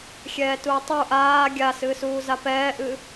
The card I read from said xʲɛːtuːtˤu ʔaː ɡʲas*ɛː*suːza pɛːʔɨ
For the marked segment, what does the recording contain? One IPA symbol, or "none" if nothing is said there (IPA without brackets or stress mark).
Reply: ɨː